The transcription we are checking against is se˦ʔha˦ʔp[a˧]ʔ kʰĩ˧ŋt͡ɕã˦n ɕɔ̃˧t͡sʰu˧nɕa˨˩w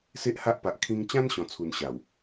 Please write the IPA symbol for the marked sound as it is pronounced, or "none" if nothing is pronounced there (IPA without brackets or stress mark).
a˨